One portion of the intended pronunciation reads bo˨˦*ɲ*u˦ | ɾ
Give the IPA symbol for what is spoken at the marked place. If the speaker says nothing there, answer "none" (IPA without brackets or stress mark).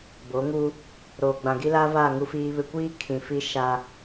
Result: ŋ